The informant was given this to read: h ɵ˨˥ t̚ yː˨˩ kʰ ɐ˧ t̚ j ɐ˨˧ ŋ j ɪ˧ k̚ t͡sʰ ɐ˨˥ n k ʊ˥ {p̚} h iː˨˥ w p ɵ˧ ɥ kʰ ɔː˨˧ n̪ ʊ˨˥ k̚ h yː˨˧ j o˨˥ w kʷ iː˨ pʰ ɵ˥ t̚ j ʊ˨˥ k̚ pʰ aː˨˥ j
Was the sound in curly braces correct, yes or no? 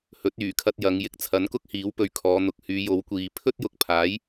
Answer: no